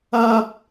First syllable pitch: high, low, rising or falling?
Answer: high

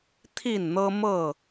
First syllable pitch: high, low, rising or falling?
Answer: falling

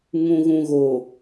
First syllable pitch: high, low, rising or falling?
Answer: low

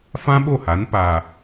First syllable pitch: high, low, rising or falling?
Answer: high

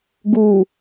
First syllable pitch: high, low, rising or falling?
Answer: low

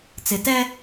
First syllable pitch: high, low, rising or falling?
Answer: low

